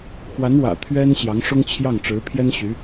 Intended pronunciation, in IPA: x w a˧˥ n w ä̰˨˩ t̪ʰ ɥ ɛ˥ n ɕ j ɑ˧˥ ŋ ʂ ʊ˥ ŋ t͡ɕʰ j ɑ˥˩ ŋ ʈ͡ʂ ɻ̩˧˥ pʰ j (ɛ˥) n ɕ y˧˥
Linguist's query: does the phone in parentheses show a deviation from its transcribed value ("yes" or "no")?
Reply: no